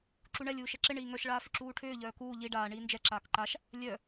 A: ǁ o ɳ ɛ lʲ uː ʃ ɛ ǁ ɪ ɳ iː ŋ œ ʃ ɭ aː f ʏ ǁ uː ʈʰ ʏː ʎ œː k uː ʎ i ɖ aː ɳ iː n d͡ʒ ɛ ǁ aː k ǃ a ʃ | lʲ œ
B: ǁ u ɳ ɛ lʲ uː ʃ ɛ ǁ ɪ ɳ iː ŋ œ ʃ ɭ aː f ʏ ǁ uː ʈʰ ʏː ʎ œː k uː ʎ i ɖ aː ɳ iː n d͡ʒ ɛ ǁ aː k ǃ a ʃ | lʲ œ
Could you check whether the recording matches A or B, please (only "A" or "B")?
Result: B